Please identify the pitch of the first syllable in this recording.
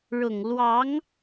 low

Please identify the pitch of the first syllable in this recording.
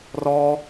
high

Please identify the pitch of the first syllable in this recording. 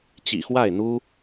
low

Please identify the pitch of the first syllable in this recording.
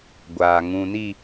low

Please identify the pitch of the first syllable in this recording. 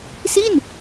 falling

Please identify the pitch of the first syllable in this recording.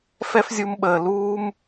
high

